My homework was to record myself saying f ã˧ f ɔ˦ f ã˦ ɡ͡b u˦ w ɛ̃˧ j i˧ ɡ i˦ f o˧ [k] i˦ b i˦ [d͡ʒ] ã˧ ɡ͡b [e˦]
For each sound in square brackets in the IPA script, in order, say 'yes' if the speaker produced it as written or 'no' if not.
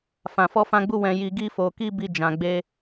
yes, yes, yes

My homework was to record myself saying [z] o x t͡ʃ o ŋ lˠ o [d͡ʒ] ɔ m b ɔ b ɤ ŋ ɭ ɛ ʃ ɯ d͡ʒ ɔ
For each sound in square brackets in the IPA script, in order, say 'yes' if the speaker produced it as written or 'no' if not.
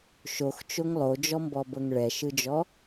no, yes

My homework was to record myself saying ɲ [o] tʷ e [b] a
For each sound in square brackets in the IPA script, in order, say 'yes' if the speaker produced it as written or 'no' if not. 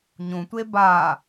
no, yes

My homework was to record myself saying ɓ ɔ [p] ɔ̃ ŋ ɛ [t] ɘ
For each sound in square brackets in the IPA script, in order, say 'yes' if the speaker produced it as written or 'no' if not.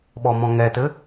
no, yes

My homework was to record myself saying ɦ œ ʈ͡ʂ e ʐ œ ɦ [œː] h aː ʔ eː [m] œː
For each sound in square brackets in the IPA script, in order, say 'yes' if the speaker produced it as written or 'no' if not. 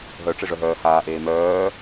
yes, yes

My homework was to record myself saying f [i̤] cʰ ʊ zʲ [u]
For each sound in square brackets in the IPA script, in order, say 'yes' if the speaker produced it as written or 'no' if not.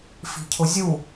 yes, yes

